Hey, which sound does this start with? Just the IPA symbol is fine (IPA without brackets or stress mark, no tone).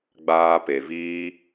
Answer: ɡ͡b